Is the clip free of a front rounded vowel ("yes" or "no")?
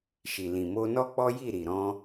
yes